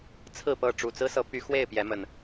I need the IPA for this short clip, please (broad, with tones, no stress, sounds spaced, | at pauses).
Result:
t͡sʰ ɹ̩˥˨ p ɤ˥˨ ʈ͡ʂ u˨˩ t͡s ɹ̩˦ s ɤ˨˦ p y˨˦ x w e˥˨ ɪ̯ p j ɛ˨˦ m ə˨˩ n